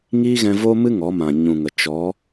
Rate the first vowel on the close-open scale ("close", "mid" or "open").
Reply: close